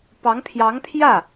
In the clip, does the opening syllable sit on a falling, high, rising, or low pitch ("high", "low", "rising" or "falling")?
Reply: rising